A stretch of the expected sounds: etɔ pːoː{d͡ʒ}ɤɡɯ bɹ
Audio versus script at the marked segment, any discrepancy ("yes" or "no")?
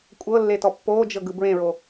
no